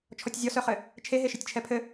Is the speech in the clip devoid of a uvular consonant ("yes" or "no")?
no